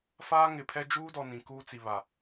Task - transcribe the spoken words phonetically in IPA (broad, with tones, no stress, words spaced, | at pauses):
faː˦ŋɪ˨pʰɛ˦ d͡ʒuː˦dɔ˨ nĩ˨kuː˦t͡si˨βa˨